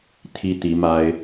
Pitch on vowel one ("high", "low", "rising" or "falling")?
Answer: high